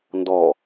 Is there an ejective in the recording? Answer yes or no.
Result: no